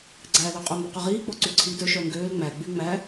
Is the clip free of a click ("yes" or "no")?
no